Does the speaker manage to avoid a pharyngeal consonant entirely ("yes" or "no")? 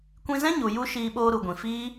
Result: yes